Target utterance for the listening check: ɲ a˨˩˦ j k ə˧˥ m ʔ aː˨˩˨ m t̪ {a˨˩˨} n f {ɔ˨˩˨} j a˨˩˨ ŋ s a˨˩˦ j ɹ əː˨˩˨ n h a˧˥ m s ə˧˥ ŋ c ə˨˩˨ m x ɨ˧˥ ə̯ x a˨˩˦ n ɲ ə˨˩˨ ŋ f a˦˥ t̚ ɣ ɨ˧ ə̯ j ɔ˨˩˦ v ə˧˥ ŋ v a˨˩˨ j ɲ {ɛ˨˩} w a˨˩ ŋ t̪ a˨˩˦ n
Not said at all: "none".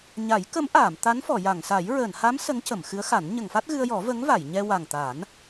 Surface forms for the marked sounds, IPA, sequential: a˧˥, ɔ˨˩˨, ɛ˧

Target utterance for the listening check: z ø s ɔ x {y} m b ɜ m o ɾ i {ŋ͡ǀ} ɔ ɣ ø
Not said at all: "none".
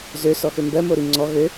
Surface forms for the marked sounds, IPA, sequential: ø, ŋ͡ǀ

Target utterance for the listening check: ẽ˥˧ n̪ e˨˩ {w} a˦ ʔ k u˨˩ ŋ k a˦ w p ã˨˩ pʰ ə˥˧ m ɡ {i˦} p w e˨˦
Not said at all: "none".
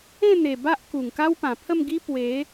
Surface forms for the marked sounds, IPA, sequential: b, i˦

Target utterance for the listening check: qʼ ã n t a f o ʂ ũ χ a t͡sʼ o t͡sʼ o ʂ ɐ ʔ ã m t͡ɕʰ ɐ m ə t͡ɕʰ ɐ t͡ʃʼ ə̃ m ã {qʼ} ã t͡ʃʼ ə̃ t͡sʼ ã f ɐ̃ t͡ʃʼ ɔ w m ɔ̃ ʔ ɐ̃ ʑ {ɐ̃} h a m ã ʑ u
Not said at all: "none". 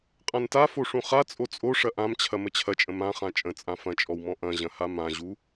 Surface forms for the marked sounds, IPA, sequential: χ, ɐ̃

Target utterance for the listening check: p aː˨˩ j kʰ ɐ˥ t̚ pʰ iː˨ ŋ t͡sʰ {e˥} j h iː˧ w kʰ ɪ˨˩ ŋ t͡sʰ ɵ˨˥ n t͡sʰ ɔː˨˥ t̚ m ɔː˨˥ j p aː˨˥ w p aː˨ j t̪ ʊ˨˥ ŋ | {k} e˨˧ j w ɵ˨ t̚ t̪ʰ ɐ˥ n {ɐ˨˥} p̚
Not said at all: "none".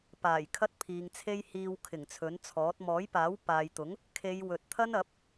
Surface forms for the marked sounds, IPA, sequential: e˥, kʰ, ɐ˨˥

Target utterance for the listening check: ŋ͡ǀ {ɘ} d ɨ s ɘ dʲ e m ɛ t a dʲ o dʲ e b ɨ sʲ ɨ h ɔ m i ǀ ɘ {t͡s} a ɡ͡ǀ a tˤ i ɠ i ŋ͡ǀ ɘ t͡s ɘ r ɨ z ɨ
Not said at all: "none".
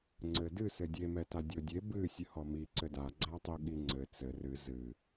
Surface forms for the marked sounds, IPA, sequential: ɘ, d

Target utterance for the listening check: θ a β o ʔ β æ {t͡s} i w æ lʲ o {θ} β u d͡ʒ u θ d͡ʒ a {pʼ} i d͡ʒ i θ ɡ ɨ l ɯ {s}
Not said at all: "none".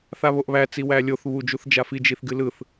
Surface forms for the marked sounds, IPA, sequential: t͡s, θ, f, θ

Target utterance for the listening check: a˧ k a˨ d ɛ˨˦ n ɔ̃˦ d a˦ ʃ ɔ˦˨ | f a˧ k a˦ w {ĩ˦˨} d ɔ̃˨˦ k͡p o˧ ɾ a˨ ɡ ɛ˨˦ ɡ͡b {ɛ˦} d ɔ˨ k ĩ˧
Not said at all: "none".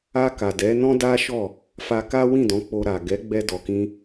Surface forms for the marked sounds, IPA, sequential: ĩ˦˨, ɛ˧

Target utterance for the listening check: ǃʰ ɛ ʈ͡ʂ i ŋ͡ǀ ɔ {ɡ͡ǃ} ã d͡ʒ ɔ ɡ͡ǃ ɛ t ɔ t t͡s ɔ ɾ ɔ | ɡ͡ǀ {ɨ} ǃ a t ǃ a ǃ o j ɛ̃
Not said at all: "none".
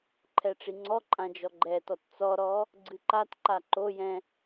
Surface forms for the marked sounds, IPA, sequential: ǃʼ, ɨ

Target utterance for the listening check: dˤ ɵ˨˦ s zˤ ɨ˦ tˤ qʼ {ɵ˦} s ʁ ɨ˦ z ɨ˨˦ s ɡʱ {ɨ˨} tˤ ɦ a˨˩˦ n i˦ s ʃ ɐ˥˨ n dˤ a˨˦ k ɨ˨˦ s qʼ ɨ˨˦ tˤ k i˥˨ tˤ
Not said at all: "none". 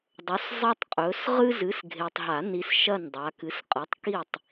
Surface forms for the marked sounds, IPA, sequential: ɵ˨˦, e˨

